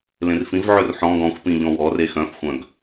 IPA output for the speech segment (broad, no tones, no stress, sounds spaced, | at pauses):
l ẽ r f ĩ v ʕ ø r ħ ɔ̃ ɡ ɔ̃ xʷ p ĩ ʎ ɔ̃ w ɔ r e x œ̃ f xʷ œ̃ ɡ